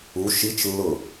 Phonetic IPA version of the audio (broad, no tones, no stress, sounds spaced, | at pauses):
u ʃ i t͡ʃ lː ʊ